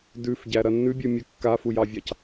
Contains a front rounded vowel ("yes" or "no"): no